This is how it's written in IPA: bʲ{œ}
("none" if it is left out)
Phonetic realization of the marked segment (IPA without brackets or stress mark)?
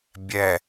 ɛ